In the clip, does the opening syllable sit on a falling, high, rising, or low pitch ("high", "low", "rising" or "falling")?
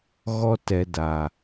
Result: high